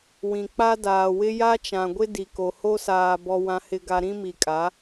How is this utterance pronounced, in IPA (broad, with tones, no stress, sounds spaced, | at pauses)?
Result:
w ĩ˨ k͡p a˦ d aː˨ w ɪ˦ j a˦ t͡ʃ ã˨ ɡʷ ɪ˦ d i˨ k o˨ h o˦ s aː˨ b ɔ˨ w ã˨ h ɪ˨ ɡ a˨ ɾ ĩ˦ m i˨ kʼ a˨˦